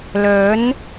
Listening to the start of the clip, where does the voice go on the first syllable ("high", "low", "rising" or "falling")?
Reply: rising